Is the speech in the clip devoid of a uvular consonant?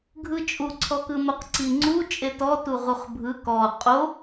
no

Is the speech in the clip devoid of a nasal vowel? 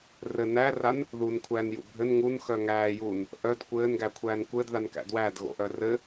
yes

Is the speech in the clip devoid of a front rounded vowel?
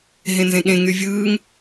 no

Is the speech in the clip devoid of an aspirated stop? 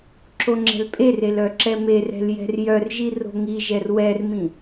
yes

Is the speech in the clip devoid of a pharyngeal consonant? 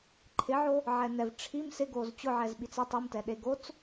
no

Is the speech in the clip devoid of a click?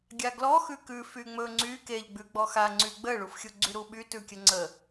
no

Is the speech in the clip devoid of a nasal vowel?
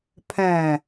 no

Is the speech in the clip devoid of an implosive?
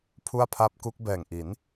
yes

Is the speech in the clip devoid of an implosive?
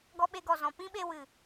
no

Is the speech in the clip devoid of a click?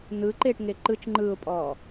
no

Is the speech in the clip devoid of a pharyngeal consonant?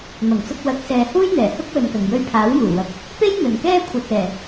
yes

